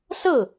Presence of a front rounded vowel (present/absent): absent